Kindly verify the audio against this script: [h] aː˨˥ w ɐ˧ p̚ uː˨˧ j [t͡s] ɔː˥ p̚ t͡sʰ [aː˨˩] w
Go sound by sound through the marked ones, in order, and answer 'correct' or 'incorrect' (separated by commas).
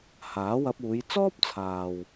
correct, correct, incorrect